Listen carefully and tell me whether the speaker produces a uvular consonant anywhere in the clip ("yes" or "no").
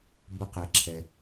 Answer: yes